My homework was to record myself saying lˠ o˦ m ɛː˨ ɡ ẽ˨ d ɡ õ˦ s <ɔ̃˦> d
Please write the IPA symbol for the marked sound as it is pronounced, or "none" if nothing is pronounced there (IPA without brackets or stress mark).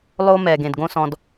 ɔ̃˧